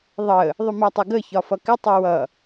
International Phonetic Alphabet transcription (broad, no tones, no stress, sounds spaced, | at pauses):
ðˤ ə | ðˤ ʊ m ɜ tˤ ʊ ɡ ə ç ɒ f ʌ k ɪ tˤ ə w ʌ